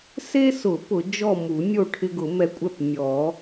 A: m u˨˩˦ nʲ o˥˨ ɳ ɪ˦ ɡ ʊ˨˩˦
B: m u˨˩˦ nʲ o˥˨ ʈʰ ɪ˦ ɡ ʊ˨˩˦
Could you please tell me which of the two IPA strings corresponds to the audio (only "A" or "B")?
B